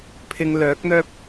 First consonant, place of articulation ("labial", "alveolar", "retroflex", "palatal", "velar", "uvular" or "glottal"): labial